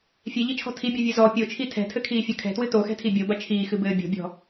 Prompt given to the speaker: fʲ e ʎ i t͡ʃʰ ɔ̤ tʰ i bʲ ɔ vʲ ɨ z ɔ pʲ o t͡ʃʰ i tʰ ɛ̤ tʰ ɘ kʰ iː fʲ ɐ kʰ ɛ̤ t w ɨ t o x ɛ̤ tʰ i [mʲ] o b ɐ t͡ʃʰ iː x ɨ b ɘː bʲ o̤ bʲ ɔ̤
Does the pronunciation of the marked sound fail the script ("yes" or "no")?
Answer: yes